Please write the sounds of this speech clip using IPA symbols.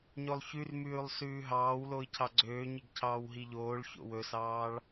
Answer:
ɲolˠçʉrmʉːlˠ sʉːɦɑːwloi̯ cʰɑɡ͡ǀøːɲiɡ cʰɑːwɦiʎoːɭço̰ wɵsɑːɭ

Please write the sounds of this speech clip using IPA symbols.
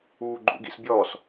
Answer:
uːɡ͡ǃṵɡḭsbʲɔːs

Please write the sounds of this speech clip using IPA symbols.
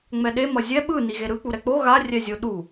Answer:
ŋ͡mɛɗe mʌzʲɛ ɓɯ niɣeɾɯ k͡puɾɛk͡po ɣa rʲɛzʲoɗu

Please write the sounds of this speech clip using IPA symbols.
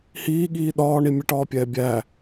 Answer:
hiːɠiː ɗɒːɳi mʲɛʈɒːpʲɛː bʲæ

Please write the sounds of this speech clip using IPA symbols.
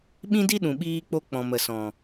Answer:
ɓĩ˦di˦ɗũ˨ ɓiː˧k͡po˧ k͡pɔ̃˨ mə˨sɔ̃˨

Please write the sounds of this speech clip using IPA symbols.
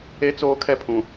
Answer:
e˦ t͡soː˦kʰɛ˦pʰũ˨

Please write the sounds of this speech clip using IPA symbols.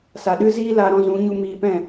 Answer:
sa˨ɗɨ˦ziː˦ laː˧ɾɔ̃˧zũ˨˦ɲu˧ miː˧pɛ̃˦˨

